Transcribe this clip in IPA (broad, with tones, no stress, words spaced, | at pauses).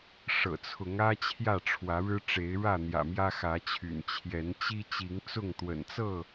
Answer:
ʂɤ̰˨˩t͡sʰʊ˨˦ŋä˦ t͡ɕʰjä˥˨ʈ͡ʂʰwä˨˦ɻɻ̩˦ ʈ͡ʂe˨˦ɪ̯ɻä˥˨n̪jä̰˨˩ mjä˦xä˨˦t͡ɕʰy̰˨˩n t͡ɕʰjɛ˨˦nt͡ɕi˦ t͡ɕi˨˦ŋt͡sʊ˥˨ŋ t̪wə̰˨˩nt͡sɤ˥˨